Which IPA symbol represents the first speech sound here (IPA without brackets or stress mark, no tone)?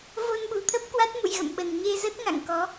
v